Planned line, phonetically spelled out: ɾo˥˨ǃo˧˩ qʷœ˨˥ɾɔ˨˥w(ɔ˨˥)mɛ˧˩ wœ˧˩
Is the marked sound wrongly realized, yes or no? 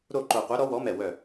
no